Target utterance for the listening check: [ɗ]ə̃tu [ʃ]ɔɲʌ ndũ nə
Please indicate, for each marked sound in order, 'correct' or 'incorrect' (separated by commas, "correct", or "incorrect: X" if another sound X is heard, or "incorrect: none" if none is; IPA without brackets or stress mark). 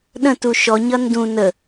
correct, correct